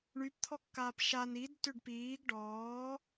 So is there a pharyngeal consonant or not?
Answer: no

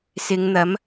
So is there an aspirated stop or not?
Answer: no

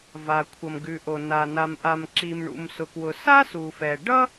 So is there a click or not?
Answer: yes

